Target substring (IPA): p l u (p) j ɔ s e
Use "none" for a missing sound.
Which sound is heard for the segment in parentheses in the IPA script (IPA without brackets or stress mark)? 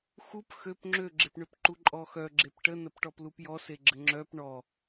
p